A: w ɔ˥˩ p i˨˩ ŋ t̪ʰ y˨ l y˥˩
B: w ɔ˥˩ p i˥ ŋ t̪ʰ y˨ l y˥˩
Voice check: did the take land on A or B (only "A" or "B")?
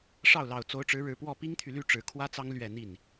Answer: B